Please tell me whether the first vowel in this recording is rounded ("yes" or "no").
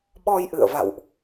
yes